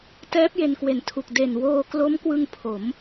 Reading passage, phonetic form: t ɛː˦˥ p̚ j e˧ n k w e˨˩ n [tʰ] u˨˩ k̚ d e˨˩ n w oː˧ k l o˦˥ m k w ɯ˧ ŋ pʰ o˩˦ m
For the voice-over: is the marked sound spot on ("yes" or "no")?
yes